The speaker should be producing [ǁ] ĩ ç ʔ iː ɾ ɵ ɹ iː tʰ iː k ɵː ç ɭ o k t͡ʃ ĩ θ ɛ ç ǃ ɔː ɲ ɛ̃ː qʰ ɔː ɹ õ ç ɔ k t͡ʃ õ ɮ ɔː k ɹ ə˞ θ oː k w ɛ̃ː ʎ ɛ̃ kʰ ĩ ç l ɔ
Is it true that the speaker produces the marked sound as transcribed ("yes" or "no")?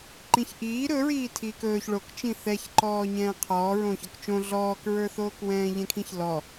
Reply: no